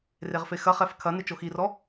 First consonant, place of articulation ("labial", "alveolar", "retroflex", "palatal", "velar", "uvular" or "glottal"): alveolar